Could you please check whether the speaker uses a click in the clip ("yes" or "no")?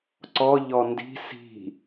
yes